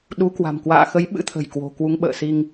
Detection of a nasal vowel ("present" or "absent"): absent